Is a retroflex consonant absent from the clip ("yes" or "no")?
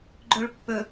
no